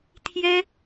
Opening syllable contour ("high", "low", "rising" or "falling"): high